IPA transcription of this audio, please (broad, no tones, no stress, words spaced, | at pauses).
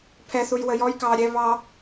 pʰɛθuj wəjɔj kɑːɾʲɛ βɑ